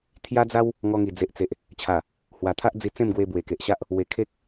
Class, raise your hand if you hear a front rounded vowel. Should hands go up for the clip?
no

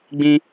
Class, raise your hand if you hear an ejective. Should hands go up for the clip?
no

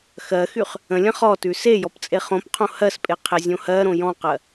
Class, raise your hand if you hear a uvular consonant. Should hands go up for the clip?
yes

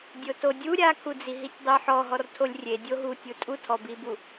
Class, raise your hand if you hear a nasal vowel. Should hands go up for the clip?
no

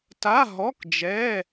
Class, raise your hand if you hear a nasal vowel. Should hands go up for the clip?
no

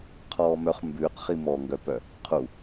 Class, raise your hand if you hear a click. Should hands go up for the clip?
no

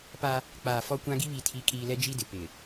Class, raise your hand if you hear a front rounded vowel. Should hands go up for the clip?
no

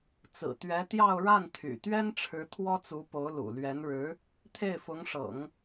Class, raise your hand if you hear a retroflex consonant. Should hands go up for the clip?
yes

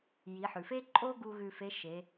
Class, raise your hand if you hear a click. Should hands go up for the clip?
yes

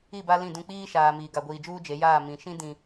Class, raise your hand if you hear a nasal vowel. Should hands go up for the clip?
yes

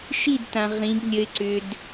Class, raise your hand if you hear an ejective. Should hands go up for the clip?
no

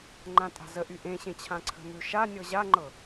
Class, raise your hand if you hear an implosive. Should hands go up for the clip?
no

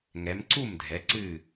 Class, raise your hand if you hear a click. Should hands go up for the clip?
yes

